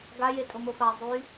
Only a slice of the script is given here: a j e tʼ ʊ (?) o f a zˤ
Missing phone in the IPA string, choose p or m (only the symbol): m